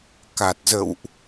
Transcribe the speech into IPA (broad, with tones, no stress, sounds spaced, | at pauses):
k a˨˩ t̚ z ə̰˧˨ w ʔ